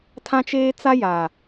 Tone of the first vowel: high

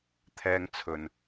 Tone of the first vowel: high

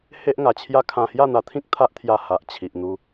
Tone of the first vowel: high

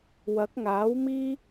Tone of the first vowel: rising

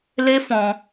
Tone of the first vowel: high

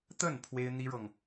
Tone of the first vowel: falling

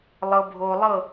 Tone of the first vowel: low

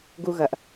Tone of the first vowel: high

